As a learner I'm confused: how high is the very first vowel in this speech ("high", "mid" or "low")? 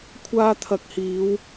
low